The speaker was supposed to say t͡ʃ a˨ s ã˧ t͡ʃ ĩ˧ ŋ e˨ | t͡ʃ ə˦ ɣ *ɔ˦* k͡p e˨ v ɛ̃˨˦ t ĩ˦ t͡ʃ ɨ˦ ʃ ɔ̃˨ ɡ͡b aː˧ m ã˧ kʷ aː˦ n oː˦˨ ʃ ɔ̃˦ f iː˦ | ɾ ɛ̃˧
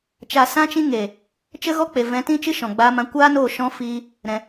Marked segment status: correct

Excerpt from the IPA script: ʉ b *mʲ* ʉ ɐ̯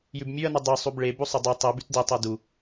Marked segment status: correct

